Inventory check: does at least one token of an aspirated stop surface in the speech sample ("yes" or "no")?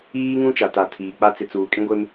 yes